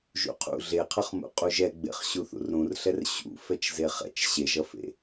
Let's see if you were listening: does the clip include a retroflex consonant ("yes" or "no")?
no